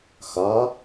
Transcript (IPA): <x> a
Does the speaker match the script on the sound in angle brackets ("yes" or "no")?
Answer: yes